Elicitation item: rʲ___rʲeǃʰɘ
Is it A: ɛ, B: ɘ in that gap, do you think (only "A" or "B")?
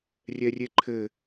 A